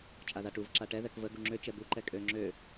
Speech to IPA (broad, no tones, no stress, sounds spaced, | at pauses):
t͡ʃʼ a ð a ʈ u v ǁ a ʈ ɛ ð ɛ k v ə ɡ u ŋ͡ǁ ø t͡ʃ ɛ b u ǃ ɛ kʼ ø ŋ͡ǁ ø